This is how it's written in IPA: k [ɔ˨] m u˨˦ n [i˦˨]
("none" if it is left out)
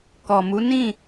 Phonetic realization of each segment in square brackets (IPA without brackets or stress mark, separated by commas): ɔ˨, ĩ˦˨